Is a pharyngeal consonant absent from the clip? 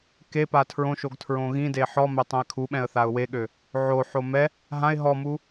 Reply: no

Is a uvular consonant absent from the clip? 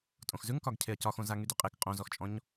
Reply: no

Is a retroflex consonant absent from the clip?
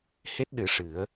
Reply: no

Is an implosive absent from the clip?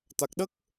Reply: no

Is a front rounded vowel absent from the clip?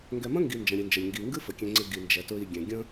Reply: yes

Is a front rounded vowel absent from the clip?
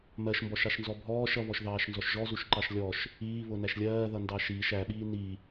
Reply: yes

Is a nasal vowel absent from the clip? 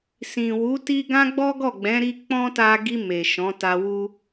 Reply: no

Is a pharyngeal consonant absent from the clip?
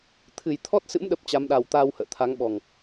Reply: yes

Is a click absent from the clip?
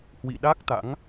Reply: yes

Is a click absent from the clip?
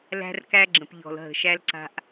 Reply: no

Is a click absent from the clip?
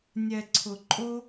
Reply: no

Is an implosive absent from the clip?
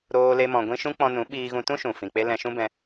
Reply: no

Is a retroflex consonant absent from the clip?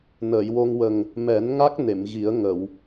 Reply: yes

